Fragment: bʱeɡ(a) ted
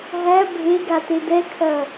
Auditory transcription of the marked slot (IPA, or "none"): a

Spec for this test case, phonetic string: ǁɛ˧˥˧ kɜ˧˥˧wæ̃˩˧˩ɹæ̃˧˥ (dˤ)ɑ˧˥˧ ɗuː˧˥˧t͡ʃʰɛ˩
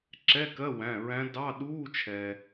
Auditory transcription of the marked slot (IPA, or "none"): d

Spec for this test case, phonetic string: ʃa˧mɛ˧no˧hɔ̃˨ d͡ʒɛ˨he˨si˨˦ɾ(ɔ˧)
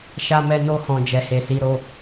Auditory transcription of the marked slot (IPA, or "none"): o˧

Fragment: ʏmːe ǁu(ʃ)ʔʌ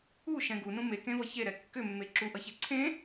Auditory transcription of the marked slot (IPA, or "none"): none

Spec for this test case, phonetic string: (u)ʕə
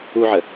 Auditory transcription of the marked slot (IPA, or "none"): u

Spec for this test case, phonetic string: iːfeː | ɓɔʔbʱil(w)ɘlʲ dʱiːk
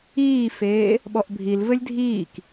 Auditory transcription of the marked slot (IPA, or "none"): v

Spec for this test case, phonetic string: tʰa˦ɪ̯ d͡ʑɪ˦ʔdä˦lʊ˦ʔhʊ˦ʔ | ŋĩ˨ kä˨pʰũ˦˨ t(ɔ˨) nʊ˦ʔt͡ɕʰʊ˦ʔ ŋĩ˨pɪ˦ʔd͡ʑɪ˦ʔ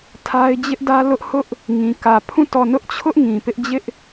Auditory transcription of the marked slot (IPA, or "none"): ɔ˦˨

